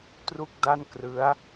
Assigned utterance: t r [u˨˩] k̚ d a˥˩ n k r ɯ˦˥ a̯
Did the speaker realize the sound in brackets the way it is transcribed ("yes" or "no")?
no